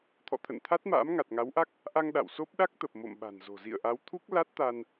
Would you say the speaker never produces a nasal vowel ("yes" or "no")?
yes